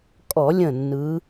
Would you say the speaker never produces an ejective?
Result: no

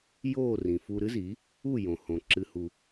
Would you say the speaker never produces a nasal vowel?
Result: no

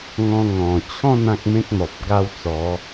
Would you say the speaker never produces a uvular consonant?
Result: yes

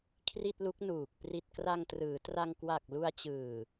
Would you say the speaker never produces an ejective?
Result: yes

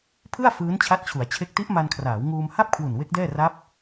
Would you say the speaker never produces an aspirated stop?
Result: no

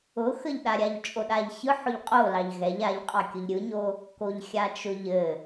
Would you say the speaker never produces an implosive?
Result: no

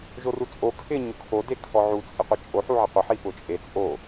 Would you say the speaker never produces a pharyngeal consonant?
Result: no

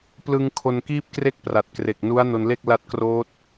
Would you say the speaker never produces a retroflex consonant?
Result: yes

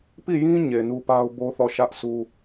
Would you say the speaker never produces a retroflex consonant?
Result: yes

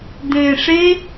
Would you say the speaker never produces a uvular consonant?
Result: yes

